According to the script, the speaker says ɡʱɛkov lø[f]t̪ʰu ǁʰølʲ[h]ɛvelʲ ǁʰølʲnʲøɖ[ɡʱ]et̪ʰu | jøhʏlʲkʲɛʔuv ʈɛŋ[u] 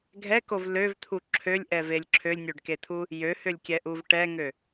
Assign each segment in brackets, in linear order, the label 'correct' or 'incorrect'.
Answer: incorrect, incorrect, incorrect, incorrect

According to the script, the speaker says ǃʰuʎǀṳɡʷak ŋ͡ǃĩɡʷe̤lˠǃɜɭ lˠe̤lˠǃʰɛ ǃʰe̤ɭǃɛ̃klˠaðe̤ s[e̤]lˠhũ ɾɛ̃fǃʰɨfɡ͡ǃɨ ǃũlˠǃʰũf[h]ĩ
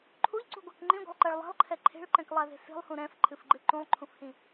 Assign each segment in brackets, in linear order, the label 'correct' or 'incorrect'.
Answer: incorrect, correct

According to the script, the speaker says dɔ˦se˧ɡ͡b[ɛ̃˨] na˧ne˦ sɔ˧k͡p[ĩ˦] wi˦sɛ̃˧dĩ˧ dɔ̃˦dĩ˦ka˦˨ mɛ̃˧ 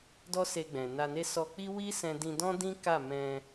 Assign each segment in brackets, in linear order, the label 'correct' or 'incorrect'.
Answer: correct, incorrect

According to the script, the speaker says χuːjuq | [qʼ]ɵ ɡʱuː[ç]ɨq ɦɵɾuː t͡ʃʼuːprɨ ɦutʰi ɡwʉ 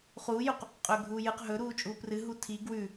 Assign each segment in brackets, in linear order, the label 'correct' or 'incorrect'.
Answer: correct, incorrect

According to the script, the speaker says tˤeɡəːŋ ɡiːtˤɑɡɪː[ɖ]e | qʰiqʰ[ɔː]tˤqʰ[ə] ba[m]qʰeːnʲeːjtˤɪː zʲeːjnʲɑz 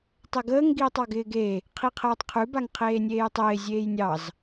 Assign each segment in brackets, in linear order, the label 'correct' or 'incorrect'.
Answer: incorrect, incorrect, incorrect, incorrect

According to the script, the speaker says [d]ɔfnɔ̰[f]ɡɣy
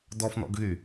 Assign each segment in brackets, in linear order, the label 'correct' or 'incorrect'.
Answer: correct, incorrect

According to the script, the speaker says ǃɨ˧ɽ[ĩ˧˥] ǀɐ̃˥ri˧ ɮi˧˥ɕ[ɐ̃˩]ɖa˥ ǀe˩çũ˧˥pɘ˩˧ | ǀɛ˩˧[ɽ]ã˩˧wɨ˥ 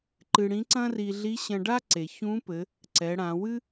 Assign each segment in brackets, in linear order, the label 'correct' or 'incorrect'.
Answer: correct, incorrect, correct

